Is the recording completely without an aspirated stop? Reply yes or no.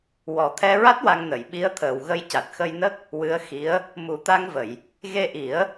no